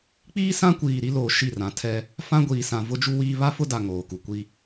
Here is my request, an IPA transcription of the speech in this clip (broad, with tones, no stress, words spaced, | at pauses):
k͡piː˦sã˦kʷiː˨ ɾi˦loː˨ ʃi˦˨rã˨ tʰɛ˦ | fã˦ɡʷiː˨sã˨ vʊ˦d͡ʒu˦wiː˦ βa˦fʊ˦da˨ ŋoː˨ku˨ kʷi˦